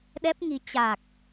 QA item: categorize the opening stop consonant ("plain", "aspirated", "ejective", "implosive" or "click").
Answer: implosive